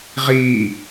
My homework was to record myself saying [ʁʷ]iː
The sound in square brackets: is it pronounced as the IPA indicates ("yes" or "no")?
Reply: no